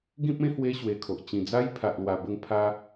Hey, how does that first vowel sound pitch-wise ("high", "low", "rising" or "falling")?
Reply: high